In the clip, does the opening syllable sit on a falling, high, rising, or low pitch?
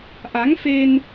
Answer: rising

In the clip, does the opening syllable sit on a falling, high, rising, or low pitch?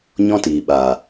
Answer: high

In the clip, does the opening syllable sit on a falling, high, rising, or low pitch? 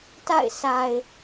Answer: falling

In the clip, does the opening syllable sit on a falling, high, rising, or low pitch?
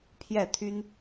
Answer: falling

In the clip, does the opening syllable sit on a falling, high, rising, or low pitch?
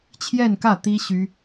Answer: falling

